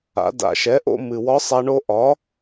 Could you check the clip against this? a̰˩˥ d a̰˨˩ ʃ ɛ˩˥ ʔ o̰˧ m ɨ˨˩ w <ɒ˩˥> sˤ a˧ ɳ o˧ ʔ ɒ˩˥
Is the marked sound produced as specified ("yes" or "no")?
no